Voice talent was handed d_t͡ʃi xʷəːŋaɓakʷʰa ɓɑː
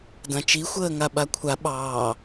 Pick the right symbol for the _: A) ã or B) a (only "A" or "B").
A